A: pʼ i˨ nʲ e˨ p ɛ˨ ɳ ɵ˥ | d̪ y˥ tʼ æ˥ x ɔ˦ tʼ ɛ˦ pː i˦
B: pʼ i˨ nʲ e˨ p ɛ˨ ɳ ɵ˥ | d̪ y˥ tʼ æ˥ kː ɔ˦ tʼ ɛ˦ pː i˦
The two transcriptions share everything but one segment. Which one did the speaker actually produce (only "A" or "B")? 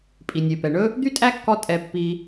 B